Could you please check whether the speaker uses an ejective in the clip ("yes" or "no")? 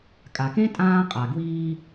yes